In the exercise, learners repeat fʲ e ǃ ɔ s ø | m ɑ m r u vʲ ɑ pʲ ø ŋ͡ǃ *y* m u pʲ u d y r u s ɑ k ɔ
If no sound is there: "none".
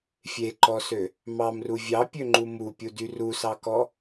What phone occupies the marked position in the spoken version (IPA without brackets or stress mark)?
u